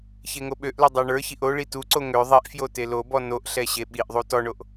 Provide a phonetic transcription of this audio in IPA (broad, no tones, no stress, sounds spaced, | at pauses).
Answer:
ç e ŋ o ɓ ø ʔ l o dˤ ə˞ ɳ ə˞ ç i ʔ o ɭ i t u ǀ o ŋ ø ðˤ i ʔ f j o t e l o b ɔ n o ʔ ɬ ɛ ɕ e ɓ i ʔ ðˤ u t ɔ ɳ o ʔ